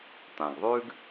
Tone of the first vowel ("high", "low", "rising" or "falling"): low